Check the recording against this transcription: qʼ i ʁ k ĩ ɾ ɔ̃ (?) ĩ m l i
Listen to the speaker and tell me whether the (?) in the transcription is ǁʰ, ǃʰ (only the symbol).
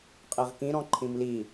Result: ǃʰ